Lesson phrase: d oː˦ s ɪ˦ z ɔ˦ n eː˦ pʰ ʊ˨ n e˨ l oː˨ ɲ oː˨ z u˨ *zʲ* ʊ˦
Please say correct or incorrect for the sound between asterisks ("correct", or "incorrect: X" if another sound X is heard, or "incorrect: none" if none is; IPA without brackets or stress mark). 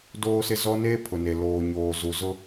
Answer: incorrect: z